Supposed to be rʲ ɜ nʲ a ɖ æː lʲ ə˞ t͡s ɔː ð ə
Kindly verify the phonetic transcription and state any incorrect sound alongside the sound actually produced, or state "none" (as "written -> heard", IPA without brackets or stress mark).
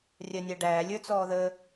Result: none